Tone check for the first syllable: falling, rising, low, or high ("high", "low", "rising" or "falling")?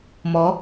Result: rising